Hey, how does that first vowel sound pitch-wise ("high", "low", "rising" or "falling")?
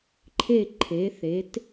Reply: falling